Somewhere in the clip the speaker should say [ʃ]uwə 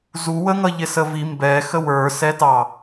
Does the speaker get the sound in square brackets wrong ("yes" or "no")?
yes